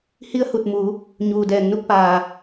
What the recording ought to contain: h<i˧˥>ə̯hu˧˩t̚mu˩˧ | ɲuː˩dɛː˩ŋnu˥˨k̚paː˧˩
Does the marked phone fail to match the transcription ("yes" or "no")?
no